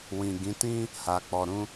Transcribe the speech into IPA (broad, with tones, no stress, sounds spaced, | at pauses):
w ĩ˨ ɡ ĩ˨˦ t ĩ˦ | h a˨ k͡p ɔ˨ ɾ ũ˧